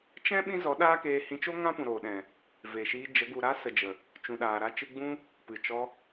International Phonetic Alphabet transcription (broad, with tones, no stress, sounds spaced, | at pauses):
t͡ʃ ɛ̃˦ ɓ ĩ˦ z ɔ˨˦ ɗ aː˦ k eː˧ h ĩ˧ t͡ʃ o˦ ŋ ã˦ p ũ˨ ɾ oː˨ ɗ ɛ̃˨ | v e˨ ʃ iː˧ d͡ʒ ə˨˦ ɡ u˨ ɾ a˦ s ə˨ d͡ʒ ə˨ | t͡ʃ ũ˨ ɗ aː˨ ɾ a˧ t͡ʃ ɨ˧ ɡ͡b ũ˦ | p ɨ˨ t͡ʃ ɔ˧